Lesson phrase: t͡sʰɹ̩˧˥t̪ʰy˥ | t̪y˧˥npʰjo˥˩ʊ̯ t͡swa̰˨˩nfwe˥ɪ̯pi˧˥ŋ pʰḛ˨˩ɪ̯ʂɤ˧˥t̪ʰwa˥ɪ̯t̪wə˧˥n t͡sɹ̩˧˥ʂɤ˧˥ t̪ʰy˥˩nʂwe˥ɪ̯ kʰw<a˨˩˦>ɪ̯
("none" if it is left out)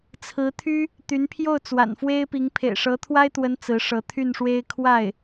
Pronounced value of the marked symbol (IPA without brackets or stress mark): a˥˩